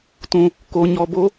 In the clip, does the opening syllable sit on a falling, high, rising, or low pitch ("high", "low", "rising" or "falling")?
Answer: low